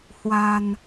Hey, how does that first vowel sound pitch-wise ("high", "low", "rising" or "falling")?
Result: low